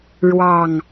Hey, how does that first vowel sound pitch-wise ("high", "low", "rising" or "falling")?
low